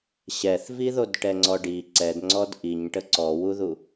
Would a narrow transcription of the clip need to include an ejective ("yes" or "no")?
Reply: no